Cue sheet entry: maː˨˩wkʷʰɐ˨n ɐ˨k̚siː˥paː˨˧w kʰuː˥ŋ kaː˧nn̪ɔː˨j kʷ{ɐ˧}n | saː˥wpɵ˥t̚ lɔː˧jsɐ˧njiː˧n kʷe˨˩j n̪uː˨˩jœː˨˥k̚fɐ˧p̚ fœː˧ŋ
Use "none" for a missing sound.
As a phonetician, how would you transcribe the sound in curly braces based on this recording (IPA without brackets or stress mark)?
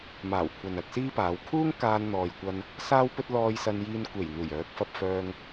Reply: ɐ˧